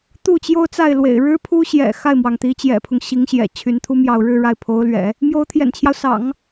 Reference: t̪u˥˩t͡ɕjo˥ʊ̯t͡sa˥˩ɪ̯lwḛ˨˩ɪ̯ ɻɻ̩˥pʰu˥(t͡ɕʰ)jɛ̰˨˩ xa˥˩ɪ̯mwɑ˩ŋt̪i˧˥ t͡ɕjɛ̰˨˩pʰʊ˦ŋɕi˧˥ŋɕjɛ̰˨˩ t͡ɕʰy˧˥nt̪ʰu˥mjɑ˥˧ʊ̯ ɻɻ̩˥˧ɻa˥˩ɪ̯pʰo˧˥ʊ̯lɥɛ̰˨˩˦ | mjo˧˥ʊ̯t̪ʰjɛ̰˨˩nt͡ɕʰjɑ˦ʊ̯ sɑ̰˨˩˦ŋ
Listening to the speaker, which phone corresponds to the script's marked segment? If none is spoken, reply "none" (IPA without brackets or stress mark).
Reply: ɕ